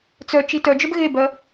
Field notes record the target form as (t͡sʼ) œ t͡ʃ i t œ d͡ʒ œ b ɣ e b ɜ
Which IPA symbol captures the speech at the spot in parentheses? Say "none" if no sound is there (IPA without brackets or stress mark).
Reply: t͡s